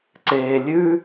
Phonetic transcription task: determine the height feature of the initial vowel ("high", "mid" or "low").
mid